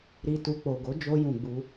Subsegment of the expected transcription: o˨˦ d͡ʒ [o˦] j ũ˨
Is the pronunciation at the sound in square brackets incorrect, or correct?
incorrect: o˧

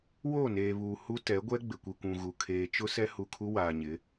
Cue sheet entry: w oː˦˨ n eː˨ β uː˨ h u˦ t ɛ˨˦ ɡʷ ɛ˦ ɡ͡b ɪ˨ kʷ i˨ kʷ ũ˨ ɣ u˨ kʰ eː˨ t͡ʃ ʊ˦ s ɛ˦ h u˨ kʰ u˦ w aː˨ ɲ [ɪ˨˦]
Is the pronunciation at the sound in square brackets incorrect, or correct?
correct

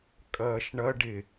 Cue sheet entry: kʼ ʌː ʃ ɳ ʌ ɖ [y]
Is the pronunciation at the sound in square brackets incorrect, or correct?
incorrect: ɪ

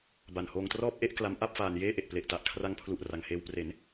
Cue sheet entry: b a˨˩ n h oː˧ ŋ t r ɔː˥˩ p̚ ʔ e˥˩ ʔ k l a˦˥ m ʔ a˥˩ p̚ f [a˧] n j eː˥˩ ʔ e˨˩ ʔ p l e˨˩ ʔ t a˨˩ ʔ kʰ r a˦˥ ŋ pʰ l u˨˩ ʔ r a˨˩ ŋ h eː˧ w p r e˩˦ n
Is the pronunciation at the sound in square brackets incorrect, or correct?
incorrect: aː˧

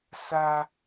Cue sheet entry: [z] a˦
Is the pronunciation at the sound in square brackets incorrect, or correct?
incorrect: s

